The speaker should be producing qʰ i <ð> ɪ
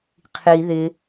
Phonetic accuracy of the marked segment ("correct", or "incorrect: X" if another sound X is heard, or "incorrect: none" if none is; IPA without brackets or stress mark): correct